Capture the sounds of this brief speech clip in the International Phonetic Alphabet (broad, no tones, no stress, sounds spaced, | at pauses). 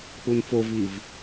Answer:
k͡p u n f o v i v